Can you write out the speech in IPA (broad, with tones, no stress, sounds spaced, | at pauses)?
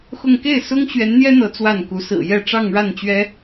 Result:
x ʊ˥˧ ŋ k e˥˩ ɪ̯ s ʊ˥ ŋ ɕ ɥ ɛ˧˥ n n̪ j ɛ˥ n̪ ɤ˧˥ t͡s w a˥˩ n k u˧˥ s ɹ̩˨˩ j ɛ˥˧ ʈ͡ʂ ɑ˥˧ ŋ ɻ a˥˩ n t͡ɕ ɥ ɛ˥